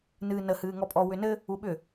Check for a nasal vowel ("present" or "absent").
absent